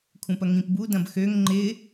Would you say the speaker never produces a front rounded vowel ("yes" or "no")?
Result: no